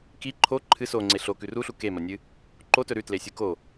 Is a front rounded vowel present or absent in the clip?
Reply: absent